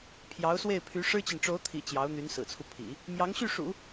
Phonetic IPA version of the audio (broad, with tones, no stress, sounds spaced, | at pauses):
pʰ j ɑ˧˥ ʊ̯ s w e˥˩ ɪ̯ pʰ y˧˥ ʂ ɻ̩˥ t͡ɕ i˨ n ʈ͡ʂ o˧˥ ʊ̯ t̪ʰ ḭ˨˩ t͡ɕ j ɑ˧˥ ʊ̯ n̪ y˧˥ n s ɹ̩˨˩ t͡sʰ u˦ pʰ ḭ˨˩˦ | m j ɑ˧˥ ŋ ɕ y˥˩ ʂ ṵ˨˩˦